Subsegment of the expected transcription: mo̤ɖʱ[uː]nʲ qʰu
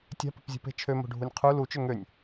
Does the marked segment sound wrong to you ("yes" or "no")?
yes